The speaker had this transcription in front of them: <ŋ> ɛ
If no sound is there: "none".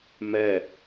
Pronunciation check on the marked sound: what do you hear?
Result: m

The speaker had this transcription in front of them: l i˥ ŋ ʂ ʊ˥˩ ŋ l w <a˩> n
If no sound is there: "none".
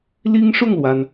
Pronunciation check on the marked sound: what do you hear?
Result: a˩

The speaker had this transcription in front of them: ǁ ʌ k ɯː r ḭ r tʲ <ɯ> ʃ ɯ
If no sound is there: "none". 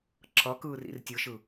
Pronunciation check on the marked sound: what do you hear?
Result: ɯ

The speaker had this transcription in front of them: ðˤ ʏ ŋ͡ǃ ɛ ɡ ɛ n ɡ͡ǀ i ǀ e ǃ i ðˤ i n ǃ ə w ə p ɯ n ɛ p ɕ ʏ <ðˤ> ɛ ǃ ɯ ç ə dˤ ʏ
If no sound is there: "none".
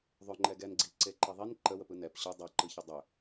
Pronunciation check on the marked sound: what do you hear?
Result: dˤ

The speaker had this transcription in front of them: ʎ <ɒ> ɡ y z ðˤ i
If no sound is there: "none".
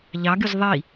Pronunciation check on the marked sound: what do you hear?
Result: ɑ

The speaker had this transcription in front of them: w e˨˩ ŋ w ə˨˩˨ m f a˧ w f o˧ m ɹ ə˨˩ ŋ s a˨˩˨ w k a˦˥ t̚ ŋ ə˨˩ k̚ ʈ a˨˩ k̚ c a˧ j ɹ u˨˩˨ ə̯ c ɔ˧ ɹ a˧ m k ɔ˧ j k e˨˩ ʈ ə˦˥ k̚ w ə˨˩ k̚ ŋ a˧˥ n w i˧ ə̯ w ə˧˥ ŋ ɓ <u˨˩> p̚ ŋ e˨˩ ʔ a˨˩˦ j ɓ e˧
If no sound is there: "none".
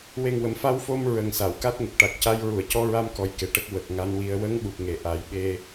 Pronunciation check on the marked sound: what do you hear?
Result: u˨˩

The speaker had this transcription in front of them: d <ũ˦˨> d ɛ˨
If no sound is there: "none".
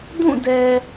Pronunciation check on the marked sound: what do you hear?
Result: ũ˦˨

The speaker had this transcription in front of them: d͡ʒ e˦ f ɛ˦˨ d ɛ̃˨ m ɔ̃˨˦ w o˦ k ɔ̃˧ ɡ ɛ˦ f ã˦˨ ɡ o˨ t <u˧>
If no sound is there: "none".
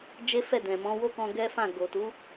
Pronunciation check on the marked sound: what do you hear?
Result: u˨˦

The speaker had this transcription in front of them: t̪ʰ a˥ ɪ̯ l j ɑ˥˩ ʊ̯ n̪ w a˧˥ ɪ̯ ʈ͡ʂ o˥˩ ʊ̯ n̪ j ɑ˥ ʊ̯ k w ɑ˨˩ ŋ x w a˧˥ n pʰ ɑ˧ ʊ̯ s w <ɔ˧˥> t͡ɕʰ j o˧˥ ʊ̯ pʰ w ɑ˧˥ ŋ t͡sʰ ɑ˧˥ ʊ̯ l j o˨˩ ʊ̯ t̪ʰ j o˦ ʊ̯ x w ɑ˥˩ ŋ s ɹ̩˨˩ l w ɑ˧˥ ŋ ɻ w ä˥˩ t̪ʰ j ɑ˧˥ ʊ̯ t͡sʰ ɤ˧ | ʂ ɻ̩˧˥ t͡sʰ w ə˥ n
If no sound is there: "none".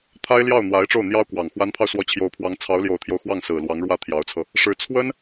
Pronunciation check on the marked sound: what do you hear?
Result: ɔ˧˥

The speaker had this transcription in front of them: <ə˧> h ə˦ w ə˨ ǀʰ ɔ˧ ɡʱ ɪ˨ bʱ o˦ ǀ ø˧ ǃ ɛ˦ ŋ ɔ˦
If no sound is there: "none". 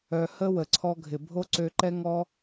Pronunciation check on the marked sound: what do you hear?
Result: œ˧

